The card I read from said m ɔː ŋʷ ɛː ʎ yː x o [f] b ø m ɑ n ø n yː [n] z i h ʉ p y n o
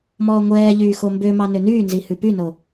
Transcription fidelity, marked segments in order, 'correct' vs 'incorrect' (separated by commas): incorrect, correct